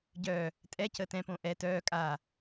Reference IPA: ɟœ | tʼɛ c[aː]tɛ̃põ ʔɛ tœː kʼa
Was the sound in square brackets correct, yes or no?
no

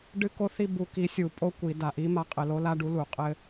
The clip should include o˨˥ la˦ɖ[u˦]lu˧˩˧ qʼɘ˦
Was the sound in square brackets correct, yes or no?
no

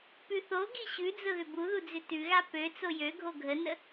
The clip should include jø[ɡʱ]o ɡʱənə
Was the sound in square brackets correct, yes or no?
yes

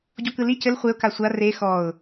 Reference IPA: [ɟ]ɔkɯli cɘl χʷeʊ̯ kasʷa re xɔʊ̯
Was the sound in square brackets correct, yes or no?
yes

